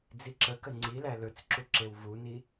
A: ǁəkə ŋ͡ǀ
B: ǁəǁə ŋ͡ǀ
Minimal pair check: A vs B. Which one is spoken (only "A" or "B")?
A